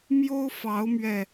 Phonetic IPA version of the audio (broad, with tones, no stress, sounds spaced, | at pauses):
m j o˦ ʊ̯ f ɑ˨˦ ʊ̯ m ɥ ɛ˨˩